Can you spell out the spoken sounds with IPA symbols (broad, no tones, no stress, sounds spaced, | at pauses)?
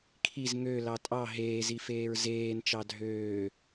kʰ i z ŋ ø l ɑ tʼ ɑ ɦ eː z i f eː ɹ z eː n t͡ʃ ɑ dʱ øː